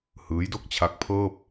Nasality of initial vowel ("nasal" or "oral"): oral